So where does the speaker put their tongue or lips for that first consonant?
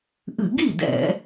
throat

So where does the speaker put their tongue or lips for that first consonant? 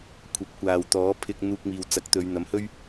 velum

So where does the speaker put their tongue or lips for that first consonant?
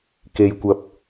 velum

